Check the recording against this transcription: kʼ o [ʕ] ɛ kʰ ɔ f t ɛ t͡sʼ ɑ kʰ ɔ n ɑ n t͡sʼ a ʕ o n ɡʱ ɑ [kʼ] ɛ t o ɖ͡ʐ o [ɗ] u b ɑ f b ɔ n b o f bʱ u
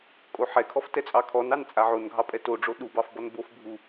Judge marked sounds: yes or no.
no, no, yes

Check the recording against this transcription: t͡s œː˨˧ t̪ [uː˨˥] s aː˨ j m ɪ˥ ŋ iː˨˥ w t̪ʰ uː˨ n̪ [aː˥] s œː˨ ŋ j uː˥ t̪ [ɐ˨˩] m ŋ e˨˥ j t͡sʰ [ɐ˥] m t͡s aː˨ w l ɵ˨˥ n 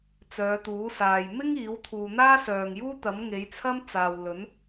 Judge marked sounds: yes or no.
yes, yes, no, yes

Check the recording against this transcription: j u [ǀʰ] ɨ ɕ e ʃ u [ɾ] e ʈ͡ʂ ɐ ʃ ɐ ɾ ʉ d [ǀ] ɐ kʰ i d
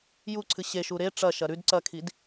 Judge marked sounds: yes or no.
yes, yes, yes

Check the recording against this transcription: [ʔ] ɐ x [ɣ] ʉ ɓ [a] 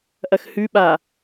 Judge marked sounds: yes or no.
yes, no, yes

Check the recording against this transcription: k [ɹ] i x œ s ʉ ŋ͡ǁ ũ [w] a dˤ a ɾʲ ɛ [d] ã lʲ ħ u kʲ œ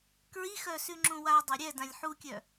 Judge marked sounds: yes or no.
yes, yes, yes

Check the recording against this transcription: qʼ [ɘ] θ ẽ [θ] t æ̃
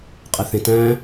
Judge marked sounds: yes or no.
no, no

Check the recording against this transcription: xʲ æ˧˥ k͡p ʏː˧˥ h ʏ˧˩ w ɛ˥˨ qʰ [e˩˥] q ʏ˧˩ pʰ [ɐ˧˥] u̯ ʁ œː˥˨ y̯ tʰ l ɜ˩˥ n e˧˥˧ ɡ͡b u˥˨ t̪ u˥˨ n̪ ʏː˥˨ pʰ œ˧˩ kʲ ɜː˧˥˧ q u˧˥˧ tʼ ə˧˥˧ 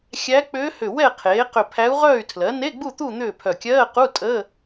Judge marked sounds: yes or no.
no, no

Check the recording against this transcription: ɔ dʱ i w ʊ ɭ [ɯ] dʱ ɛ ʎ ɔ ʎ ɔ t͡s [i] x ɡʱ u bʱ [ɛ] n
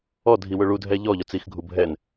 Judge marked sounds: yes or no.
no, yes, yes

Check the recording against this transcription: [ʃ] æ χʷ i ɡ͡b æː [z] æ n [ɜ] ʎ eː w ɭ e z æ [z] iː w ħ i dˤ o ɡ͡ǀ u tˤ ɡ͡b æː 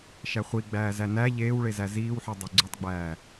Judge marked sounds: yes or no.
yes, yes, no, yes

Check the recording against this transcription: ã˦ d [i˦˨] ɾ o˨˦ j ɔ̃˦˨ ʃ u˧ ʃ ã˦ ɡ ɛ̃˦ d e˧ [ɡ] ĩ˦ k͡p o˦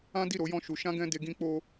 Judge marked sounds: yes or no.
yes, yes

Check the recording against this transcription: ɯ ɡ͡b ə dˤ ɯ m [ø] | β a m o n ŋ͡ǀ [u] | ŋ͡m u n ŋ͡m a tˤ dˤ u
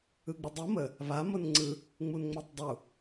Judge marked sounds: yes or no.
no, no

